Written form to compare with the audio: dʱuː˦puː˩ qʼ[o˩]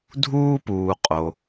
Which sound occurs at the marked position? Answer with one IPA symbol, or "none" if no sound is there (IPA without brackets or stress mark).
o˩